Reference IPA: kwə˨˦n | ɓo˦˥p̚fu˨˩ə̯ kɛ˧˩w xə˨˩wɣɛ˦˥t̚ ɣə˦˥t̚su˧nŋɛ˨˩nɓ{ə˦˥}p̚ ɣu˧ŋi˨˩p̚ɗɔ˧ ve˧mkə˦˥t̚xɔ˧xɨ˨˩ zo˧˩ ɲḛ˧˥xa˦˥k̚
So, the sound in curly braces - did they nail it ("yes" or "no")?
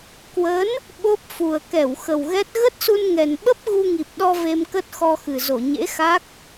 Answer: yes